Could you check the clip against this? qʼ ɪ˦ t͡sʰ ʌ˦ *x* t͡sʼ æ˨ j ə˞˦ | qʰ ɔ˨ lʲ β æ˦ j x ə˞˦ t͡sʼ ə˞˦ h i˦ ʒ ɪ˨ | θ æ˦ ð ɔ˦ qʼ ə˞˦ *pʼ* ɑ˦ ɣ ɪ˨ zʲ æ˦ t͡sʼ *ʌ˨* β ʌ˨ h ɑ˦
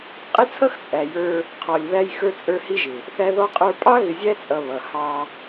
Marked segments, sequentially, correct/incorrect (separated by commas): correct, correct, correct